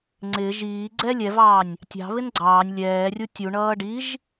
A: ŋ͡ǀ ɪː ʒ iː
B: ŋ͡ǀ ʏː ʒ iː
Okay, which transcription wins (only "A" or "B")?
A